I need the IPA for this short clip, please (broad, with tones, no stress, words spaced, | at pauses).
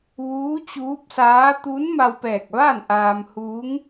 ʋuː˧˥t͡ɕuː˧˥p̚saː˧˥ t̪uː˧˥nma˧wpɛː˧˩k̚ʋaː˥˨n ʔaː˧m huː˧˥ŋ